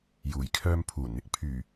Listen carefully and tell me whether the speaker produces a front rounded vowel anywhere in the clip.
yes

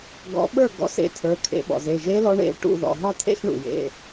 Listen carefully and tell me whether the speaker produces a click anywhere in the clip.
no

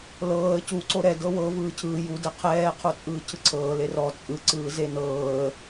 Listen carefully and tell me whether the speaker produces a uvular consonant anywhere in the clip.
yes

